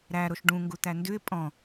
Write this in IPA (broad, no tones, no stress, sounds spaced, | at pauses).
ɾ æ ɾ o ʃ ɖ ũ ŋ ɡ u t̪ æ n d ʉ ɪ̯ pʼ ɔ̃